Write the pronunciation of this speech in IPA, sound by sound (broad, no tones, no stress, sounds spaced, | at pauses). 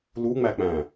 l u ŋ͡m æ k͡p æ̃